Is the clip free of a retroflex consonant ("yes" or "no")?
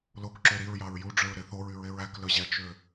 no